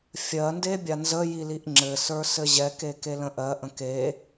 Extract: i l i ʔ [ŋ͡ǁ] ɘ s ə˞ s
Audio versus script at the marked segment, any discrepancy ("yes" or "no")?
no